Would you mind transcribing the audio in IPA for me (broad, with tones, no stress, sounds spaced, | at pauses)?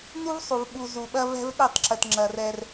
n u˦ v sˤ u˨ v ɓ u˨ z u˨ ɓ ɐ˦ v ɛ̤˦ v ɗ ɛ˦˨ tˤ ǁ ə˨ t ŋ͡ǁ ɐ˨ r ɛ˦ r